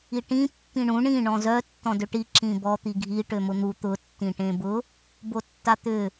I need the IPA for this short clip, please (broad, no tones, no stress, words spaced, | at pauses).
iʈĩ pːĩɳũ ɳĩ ɳɔ̃zœ tːɔ̃dʏʈi ǁĩbɔ t̪iɡʱi ʈømʊn̪u t̪ʊ tːĩʈẽbʊ | botːat̪ʏ